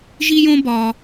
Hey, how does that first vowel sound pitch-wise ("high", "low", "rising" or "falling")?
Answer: high